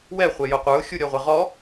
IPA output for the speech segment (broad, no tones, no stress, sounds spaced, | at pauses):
w ɛ χʷ e j o qʷ ə˞ ʊ̯ xʲ u ɾʲ ɔ ʁʷ ɛ ʁ ɔ